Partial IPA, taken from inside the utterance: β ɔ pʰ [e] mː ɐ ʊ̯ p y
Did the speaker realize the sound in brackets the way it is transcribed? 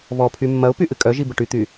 no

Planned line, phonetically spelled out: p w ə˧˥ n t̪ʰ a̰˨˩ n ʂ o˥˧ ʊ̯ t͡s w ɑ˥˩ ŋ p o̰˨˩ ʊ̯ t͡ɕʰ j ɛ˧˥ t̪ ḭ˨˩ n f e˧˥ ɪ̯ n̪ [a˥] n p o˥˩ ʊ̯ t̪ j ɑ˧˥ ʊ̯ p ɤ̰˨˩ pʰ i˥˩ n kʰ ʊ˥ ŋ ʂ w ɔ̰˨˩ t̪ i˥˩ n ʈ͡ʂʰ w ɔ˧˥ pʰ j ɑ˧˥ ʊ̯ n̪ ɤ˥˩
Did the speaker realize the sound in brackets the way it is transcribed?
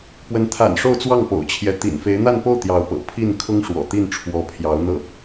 no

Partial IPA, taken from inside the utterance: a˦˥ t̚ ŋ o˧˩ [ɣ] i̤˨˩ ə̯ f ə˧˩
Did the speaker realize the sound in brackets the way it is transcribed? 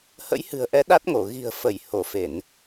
yes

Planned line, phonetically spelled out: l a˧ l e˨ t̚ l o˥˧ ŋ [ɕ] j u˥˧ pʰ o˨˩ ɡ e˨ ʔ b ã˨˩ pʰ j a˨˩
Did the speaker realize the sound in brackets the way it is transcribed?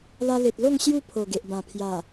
yes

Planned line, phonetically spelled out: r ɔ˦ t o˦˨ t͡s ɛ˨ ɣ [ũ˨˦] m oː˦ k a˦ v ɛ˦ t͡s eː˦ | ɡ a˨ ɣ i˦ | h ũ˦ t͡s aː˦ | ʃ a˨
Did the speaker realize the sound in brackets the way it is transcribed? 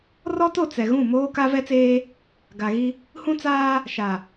no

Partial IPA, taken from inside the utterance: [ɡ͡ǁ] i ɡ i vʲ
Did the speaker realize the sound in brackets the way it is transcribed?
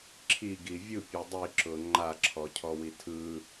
no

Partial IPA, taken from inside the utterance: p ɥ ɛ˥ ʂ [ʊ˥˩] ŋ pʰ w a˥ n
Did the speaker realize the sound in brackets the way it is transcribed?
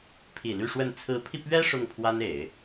yes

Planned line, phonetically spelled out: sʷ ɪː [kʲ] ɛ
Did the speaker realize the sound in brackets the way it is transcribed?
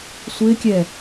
yes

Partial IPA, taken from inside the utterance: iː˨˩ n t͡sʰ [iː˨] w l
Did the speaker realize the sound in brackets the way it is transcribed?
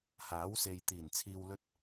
yes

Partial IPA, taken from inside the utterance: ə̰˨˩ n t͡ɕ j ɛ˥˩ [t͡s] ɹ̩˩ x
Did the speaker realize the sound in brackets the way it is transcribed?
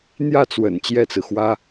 yes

